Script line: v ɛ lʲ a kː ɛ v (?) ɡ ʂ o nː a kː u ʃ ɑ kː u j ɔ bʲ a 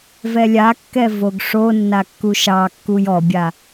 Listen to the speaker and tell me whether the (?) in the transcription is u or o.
o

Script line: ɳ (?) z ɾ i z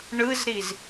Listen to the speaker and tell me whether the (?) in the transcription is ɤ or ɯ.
ɯ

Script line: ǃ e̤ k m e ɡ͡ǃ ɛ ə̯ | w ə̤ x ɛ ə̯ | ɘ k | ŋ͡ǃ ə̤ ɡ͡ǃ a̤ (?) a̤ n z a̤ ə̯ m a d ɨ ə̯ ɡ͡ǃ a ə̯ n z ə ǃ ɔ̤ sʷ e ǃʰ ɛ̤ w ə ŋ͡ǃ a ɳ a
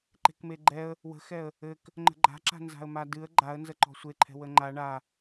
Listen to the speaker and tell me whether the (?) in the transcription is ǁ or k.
ǁ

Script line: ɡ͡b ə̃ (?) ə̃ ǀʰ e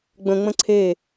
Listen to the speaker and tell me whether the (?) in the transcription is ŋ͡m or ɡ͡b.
ŋ͡m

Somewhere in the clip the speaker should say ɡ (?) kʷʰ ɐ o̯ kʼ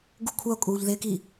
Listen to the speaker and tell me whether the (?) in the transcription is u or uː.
u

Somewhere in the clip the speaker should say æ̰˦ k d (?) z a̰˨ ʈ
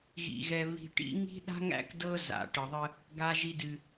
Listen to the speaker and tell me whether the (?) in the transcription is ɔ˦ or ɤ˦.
ɤ˦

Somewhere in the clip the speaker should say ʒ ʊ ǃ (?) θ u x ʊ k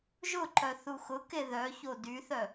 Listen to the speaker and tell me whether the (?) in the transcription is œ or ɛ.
œ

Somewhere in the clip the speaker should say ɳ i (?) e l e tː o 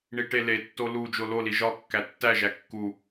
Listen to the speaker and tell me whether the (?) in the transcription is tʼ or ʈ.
ʈ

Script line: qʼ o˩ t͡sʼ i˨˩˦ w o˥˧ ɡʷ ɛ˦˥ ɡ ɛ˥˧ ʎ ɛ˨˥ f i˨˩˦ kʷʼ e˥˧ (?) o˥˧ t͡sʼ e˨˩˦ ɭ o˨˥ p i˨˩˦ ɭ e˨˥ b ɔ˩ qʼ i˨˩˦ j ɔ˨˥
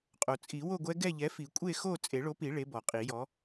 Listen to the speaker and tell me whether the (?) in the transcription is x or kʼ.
x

